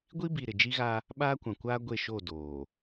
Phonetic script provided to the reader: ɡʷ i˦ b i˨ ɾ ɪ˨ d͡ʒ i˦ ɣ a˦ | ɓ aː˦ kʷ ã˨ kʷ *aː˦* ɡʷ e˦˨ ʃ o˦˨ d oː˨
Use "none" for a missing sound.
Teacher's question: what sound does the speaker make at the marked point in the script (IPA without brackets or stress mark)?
aː˦